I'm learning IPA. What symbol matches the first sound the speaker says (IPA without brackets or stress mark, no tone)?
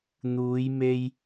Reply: n̪